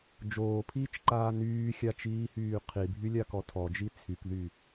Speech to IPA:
d͡ʒoːpʰiːt͡ʃǃaː nyːxʲat͡ʃiːhyː qʰibʱylʲakɔ tʰɔd͡ʒi t͡sʰykðy

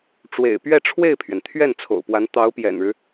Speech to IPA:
ʈ͡ʂwḛ˨˩ɪ̯pɥɛ˥˧ ʈ͡ʂʰwe˥˩ɪ̯pʰɥɛ˩nt̪ʰɥɛ˥˩n t͡sʰo̰˨˩ʊ̯pwa˧˥n t̪ɑ˧˥ʊ̯pjɛ̰˨˩nɻɻ̩˦

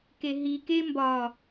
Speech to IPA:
keɦi kembɒ

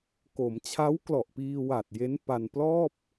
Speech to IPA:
ko˩˦m t͡ɕʰa˦˥wklɔ˨˩ʔpiː˧wa˨˩t̚ je˦˥npa˧n plɔː˥˩p̚

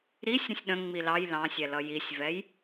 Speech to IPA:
ɾisʲ ɾə̃sʲɗə̃ ŋ͡milɑj lɑ̃sʲɛlʌ jisʲvɛj

